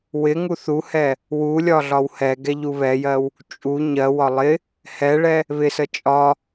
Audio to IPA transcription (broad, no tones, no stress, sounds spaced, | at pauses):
w ɪ ŋ u θ u h ɛ | w u lʲ ɒ ɮ ɒ w h ɛ ɡ ɛ ʎ u β ɛ j ɜ w | t͡ʃʼ u ɲ ɜ w ɒ lˠ ɪ | h ɛ ɭ ɛ | β ɪ s ə t͡ʃʼ ɒ